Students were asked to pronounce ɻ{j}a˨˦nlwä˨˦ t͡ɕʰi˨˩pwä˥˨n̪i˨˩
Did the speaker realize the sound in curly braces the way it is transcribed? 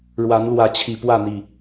no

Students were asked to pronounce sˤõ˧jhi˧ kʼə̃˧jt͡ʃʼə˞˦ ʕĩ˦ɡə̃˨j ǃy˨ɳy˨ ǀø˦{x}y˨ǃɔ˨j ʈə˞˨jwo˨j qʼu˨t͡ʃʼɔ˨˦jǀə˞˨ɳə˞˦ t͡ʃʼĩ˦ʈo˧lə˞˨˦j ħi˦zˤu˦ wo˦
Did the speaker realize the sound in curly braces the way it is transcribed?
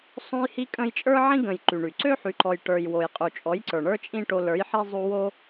no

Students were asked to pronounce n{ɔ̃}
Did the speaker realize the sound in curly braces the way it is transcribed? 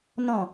yes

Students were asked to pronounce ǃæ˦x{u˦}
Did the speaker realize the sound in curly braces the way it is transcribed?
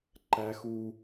yes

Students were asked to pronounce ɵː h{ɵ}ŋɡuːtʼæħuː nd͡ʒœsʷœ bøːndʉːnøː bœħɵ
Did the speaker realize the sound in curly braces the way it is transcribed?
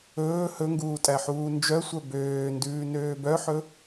yes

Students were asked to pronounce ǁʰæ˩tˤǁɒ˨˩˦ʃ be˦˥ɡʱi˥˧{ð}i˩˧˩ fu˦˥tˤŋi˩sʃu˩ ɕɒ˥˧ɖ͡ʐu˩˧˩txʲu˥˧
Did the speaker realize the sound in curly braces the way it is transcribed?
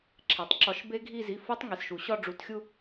no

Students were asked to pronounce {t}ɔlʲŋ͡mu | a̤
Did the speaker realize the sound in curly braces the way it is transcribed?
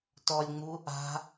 yes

